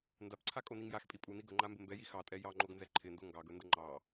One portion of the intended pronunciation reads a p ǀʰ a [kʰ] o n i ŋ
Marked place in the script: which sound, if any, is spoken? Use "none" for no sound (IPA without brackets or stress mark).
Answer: kʼ